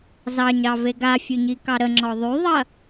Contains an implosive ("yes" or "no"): no